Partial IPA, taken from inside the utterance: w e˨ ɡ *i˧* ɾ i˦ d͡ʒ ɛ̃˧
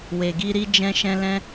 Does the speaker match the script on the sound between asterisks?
yes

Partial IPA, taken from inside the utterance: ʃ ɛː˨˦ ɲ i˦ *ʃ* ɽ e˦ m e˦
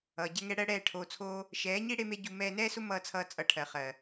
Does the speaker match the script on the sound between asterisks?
no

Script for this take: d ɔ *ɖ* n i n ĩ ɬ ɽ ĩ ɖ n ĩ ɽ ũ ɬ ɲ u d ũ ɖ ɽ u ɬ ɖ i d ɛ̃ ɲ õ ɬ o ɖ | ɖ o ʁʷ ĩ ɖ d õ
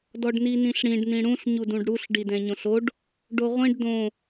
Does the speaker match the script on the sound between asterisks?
yes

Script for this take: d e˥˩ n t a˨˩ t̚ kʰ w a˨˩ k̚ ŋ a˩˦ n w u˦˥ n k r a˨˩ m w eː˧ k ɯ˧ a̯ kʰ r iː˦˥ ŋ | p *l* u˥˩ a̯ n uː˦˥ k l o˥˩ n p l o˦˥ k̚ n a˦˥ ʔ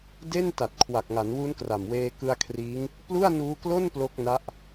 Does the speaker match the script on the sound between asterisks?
yes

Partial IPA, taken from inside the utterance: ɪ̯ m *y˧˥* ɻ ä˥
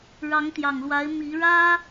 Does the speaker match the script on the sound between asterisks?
no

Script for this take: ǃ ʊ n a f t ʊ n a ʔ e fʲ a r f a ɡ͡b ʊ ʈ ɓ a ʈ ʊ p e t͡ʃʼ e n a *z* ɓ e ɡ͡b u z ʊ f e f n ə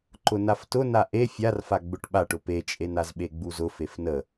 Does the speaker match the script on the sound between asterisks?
yes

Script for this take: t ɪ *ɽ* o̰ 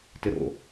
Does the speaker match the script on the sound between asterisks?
no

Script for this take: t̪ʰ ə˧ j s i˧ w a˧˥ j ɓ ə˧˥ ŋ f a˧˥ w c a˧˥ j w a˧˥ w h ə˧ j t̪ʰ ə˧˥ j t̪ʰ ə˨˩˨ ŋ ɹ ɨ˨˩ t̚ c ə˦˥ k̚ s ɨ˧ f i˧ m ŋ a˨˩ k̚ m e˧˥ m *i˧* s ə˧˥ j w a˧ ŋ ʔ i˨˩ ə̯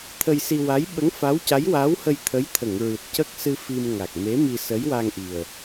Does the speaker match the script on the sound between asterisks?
yes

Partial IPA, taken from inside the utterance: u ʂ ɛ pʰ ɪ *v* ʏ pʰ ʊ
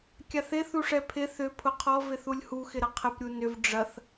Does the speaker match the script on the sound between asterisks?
no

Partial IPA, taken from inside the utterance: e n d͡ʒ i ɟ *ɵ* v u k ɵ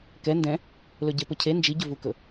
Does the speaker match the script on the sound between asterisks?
yes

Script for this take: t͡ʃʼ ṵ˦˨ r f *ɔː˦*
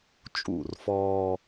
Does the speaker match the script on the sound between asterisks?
yes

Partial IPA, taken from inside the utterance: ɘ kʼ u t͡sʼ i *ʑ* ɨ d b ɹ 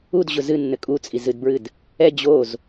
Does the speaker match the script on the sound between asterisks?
no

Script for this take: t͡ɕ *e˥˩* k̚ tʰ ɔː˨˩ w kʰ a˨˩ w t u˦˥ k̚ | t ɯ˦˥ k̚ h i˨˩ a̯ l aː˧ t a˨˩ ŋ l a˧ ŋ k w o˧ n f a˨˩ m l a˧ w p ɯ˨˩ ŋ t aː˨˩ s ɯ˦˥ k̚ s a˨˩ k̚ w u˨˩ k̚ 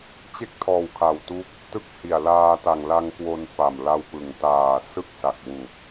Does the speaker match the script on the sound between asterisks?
yes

